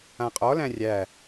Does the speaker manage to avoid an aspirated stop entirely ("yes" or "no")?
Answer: yes